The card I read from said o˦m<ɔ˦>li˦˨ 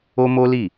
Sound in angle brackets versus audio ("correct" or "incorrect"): incorrect